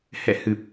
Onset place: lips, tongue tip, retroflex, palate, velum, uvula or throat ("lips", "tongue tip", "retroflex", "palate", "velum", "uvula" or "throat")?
throat